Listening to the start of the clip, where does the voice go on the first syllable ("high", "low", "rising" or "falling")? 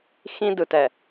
high